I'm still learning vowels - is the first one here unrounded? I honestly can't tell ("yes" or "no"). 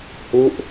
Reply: no